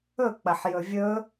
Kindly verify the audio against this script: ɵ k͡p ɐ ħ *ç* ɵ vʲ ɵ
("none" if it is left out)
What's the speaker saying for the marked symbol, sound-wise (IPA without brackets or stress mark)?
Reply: j